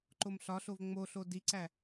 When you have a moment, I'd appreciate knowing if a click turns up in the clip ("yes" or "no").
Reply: yes